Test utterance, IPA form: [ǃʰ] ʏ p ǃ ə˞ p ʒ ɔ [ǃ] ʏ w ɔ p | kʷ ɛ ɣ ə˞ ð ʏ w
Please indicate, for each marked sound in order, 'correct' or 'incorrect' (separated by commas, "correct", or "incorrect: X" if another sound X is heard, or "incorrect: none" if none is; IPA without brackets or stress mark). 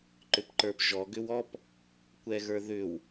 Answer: incorrect: ǃ, incorrect: ɡ